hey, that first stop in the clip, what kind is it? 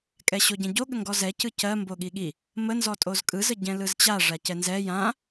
ejective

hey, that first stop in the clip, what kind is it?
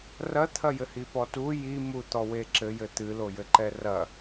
aspirated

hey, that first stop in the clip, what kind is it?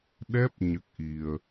implosive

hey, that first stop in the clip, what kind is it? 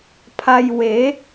aspirated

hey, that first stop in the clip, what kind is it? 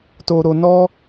plain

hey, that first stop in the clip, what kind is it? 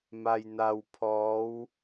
aspirated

